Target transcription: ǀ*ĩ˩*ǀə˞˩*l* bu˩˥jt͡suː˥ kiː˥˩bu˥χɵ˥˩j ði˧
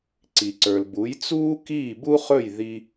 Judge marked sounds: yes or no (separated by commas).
no, yes